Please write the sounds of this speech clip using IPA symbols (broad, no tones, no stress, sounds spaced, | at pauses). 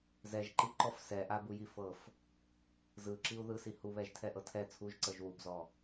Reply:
z ɛ ʒ ǃ i ǃ ɔ f s ɛ ʔ a b u j i f ɤ f | z ɯ ǁ i u̯ ð ɯ s i h u β ɛ ʒ tʰ ɛ ʔ ɤ tʰ ɛ t͡sʰ u ʒ ǀ ɤ ʒ w u b z ɔ